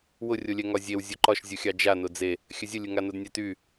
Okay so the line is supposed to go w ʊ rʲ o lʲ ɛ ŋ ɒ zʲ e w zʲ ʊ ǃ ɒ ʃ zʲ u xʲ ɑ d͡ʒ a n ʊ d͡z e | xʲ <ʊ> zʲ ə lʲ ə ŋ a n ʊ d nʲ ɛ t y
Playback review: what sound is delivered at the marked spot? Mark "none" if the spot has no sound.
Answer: ə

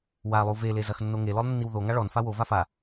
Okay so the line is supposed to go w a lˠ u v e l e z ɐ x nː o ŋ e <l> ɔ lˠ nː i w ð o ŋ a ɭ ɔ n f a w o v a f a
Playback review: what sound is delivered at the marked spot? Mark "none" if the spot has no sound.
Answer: l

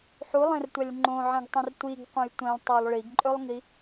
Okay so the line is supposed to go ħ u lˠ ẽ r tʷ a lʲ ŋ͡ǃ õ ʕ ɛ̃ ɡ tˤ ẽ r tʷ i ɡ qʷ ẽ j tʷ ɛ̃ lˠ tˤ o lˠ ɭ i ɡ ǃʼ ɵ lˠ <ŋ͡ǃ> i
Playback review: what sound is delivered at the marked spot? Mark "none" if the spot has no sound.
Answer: ŋ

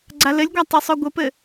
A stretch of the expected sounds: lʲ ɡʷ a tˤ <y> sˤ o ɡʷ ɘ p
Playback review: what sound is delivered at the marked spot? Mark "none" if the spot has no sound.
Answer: y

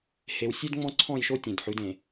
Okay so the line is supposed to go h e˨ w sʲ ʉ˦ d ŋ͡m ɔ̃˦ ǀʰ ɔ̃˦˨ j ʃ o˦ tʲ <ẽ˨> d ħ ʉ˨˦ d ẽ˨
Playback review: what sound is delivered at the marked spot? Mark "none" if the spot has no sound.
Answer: ẽ˨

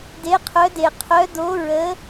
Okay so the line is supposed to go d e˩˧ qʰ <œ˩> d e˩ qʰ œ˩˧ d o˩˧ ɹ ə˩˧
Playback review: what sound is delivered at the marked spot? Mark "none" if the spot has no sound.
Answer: œ˩˧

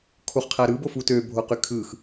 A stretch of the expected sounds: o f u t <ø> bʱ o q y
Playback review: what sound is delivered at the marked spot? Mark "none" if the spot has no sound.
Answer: ø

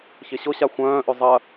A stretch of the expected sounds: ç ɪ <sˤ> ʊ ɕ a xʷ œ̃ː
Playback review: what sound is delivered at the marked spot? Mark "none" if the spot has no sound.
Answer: ɕ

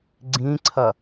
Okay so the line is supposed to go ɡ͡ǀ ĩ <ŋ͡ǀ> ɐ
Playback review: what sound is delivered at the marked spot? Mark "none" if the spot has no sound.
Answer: ǀʰ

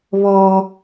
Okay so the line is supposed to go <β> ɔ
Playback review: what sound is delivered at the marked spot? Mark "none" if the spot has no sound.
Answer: β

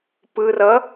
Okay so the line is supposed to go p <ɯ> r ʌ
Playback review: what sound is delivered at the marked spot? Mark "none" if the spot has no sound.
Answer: ɯ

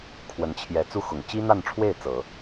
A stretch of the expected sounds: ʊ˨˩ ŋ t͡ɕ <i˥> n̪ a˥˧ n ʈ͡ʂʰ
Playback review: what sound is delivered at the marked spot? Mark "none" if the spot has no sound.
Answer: i˥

